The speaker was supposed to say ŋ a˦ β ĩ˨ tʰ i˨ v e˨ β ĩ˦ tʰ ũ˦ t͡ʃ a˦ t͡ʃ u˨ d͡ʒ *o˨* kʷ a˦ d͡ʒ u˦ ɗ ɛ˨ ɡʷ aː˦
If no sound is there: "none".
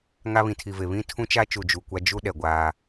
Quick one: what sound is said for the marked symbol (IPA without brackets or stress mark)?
u˨